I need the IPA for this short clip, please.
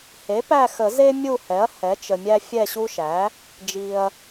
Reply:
h e˩˥ p æ˦˨ x ə˨˩˦ z e˦ mʲ u˦˨ h ɛ˩˥ ɐ̯ h ɛ˩˥ t͡ʃ ə˨ mʲ æ˦ fʲ ɛ˦˨ ɕ u˦ ʃ æ˩˥ | d͡ʒ i˨ ɐ̯

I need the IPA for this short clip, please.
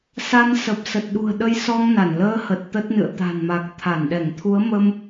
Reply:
s a˧ n s ə˨˩ p̚ s ə˨˩ t̚ ɗ ṳ˨˩ ə̯ ɗ ə˧ j s ɔ˧ ŋ n a˧˩ n l əː˧ h ə˨˩ t̚ t̪ ə˦˥ t̚ n ɨ̰˧˨ ə̯ t̪ a̤˨˩ n m a˨˩ k̚ t̪ʰ a˧˩ n ɗ ɛ˧˩ ŋ t̪ʰ u˨˦ ə̯ m ə˧ m

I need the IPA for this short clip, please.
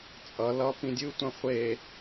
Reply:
t͡sʼ ʌ l ʌ p ĩ dʲ ɯ tʷ ã χʷ e

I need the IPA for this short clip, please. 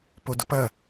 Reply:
p o d ʊ p ɐ

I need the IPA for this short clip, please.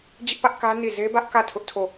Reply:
d͡ʑ ɪ˦ ʔ p ä˦ ʔ k ä˦ n i˦˨ z e˦ b ä˦ ʔ k ä˦˨ tʰ ʊ˦ ʔ tʰ o˦˨

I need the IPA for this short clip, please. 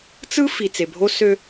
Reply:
t͡s ɯ˦ f i˨ t͡s e˨ bʱ o˦ s ø˦

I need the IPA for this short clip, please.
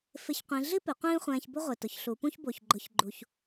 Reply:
f ɪ˥ ç qʷ ĩ˧˥ ɮ i˥ p ɪ˩˧ qʷ ĩː˥ χʷ ɛ̃ː˧ ç b ʊ˥ ʁʷ i˩ t ʊ˩ ç ɬ u˩˧ p ũ˥ ç b o˩ ç ɡ͡ǃ ʊ˩˧ ç ɡ͡ǃ u˩ ç

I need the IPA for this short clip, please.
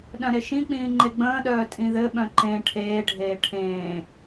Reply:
ɗ œ̃ ɾ e ʃ ĩ k͡p ĩː ŋ͡ǃ e ɡ͡b ə̃ː ɗ œː tʼ ĩ ð ɘ ɓ œ̃ ǃ ẽ ʈʰ eː ɖʱ eː ʈʰ ẽː

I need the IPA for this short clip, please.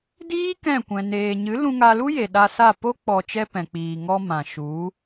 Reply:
d iː˦ k ɛ̃˦˨ kʷ ɛ̃˨ n eː˨ ɲ ɨ˨˦ l ũ˧ ŋ a˧ l u˦ j e˨ ɗ a˧ s a˦˨ p o˦ k͡p ɔ˨ t͡ʃ ɛ˧ p ɛ̃˨ k͡p iː˨ ŋ ɔ˧ m ã˨ ʃ u˨˦

